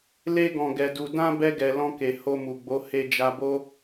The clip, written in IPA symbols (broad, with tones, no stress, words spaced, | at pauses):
le˧ɡɔ̃˨ɡɛ˨du˨ dã˧ bɛ˧ɡɛ˨ lɔ̃˧ke˨ ho˧mu˨ɡ͡bo˨˦ he˧d͡ʒa˧bo˦